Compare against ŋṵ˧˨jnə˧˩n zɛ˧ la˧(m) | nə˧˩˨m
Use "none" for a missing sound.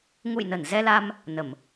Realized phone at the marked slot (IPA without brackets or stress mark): m